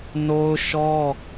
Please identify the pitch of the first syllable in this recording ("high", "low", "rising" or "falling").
high